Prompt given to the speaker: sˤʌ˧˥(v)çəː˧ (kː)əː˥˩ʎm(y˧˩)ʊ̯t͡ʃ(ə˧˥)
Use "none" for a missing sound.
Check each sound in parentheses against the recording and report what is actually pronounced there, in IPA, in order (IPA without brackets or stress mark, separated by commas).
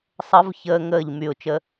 v, ŋ, y˧˩, ə˧˥